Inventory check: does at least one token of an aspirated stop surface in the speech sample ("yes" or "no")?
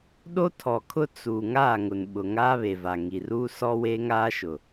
yes